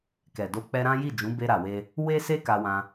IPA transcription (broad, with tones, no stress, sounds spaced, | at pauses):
k ɛ˨ d o˧ k͡p ɛ˧ ɾ ã˦ j i˦˨ d͡ʒ ũ˨˦ b e˧ ɾ a˨ w e˧ | w e˦ s e˦ k a˧ w ã˧